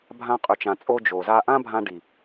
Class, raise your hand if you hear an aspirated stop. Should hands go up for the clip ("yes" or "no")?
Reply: no